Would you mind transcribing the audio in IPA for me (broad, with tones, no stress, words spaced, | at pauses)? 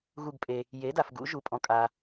ɣu˧˩ɡpʼe˩ | je˩˥da˩fɡṵ˨˩˦ ʒu˩pʼɔ̃˩ kʼa˩